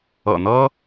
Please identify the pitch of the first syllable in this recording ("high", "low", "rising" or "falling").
low